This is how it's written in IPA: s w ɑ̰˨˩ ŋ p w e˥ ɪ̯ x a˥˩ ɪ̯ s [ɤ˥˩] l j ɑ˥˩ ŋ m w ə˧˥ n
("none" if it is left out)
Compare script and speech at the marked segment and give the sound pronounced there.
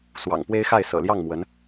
ɤ̰˨˩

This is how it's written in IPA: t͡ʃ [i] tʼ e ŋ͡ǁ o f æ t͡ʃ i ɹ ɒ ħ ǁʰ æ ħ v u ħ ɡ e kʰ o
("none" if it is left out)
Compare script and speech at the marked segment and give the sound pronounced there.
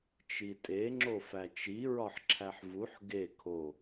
i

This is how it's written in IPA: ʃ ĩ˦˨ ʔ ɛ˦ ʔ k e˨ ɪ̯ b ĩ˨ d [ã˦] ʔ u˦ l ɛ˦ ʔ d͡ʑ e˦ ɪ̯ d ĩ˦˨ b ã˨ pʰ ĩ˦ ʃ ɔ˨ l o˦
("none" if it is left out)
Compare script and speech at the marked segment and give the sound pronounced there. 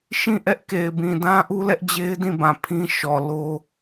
ã˦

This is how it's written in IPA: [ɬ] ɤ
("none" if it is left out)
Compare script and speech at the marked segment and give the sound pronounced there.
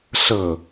ɬ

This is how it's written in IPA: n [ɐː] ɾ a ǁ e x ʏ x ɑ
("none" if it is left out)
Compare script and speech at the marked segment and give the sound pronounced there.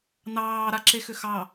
ɑː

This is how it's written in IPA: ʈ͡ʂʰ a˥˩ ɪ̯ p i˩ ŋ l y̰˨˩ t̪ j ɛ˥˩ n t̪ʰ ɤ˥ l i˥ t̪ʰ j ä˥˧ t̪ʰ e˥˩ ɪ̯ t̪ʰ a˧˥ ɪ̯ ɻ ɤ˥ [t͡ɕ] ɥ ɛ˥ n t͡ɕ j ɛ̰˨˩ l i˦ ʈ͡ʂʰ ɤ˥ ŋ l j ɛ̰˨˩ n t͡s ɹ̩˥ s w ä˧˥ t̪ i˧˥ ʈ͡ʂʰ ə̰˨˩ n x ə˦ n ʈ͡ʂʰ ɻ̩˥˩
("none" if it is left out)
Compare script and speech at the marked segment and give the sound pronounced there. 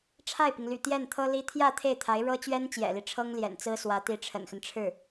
t͡ɕ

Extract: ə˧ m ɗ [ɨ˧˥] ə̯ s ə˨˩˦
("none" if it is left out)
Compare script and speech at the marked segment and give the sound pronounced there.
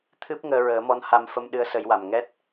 ɨ˧˥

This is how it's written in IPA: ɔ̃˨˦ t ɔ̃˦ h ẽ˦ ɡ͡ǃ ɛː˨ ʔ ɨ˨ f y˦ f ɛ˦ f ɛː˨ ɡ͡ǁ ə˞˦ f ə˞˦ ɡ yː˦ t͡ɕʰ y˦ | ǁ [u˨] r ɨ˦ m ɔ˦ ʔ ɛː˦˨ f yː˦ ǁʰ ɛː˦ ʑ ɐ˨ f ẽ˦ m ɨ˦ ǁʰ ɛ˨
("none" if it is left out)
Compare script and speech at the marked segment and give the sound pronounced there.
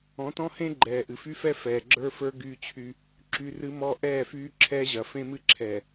y˨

